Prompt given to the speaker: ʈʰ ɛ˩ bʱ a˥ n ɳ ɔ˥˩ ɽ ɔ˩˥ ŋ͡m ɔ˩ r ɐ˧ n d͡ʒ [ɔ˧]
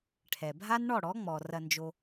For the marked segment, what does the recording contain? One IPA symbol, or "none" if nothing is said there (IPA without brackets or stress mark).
o˧